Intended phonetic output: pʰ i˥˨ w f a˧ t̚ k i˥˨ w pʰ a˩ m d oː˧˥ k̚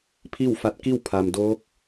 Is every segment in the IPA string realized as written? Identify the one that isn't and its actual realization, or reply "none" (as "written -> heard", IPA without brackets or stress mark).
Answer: none